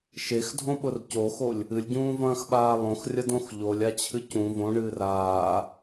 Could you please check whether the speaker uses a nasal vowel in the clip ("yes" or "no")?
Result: yes